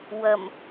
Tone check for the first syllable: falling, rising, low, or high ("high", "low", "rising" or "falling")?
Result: low